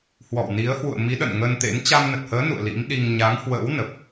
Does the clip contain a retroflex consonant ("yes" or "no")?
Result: no